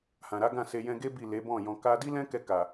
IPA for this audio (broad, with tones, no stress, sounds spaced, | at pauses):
h ã˨ ɾ a˨˦ ɡ ã˦˨ s e˧ j ɛ̃˧ ɡ e˦ b i˦˨ l e˨˦ b ɔ̃˦˨ j ɔ̃˧ k a˧ d i˦ l ɛ̃˦ k ɛ˧ k a˨